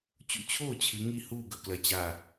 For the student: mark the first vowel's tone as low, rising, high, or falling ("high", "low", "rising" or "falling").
falling